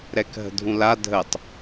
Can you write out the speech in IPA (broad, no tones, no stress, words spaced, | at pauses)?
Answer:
ɾɛkɦə̤dʱũla dʱətˤ